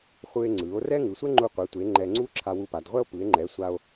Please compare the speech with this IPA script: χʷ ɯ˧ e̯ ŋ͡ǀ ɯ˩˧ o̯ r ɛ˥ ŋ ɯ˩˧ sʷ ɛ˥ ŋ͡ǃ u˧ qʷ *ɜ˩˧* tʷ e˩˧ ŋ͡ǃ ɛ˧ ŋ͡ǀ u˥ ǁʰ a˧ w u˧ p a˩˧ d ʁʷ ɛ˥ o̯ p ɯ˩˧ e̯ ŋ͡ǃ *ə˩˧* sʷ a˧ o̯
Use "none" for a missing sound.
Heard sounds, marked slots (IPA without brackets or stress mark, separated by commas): ɛ˩˧, ɛ˩˧